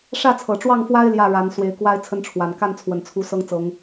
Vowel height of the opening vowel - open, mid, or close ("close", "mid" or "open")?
open